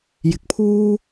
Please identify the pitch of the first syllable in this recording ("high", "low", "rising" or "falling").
rising